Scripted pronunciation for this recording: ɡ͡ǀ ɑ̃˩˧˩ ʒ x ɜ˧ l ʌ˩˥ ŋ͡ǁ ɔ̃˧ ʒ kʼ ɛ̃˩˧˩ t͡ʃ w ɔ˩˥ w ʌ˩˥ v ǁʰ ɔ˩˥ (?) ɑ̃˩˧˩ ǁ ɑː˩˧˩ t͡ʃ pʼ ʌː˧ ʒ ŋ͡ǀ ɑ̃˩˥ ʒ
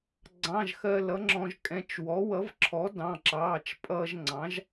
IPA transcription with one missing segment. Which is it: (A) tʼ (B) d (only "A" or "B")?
B